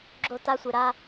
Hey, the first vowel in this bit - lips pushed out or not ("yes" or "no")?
yes